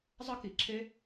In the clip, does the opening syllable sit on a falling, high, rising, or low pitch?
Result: high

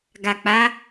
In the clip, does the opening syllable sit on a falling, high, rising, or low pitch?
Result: low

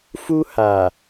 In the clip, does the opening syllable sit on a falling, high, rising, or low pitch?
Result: high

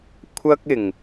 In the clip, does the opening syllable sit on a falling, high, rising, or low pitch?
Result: high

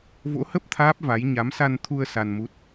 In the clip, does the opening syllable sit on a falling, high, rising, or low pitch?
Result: rising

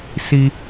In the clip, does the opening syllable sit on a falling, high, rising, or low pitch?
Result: high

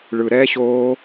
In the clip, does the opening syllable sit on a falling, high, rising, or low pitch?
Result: low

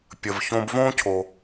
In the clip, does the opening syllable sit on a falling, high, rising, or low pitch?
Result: low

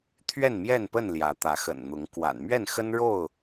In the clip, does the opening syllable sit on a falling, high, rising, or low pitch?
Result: falling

